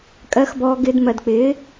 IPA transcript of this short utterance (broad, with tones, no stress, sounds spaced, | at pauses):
kʼ ɜ˧ x b ɔː˧ ɡ ɪː˧ d m ɜ˨ d k͡p ɪː˨˦